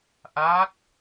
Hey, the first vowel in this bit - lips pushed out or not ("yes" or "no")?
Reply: no